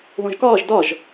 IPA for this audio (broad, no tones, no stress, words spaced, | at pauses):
ðõʒkɒːʒ dɒʒ